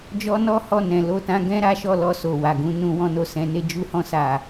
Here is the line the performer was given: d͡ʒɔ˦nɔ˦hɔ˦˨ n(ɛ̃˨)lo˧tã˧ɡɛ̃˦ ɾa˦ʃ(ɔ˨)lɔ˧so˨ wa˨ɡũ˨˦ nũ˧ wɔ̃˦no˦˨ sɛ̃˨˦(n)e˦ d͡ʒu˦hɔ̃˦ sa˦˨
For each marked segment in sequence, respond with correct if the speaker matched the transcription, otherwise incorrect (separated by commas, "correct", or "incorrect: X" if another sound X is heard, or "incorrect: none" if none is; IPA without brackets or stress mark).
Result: correct, incorrect: ɔ˦˨, correct